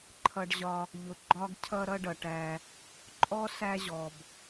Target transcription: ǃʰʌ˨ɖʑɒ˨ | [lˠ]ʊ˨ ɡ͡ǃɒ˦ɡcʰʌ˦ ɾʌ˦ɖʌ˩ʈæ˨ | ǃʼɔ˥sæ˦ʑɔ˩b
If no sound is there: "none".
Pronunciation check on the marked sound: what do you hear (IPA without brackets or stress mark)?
ʎ